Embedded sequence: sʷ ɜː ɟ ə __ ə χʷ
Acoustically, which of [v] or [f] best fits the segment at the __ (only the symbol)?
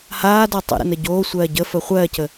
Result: f